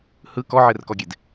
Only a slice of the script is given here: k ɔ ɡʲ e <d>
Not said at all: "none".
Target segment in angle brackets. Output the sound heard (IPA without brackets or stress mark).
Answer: d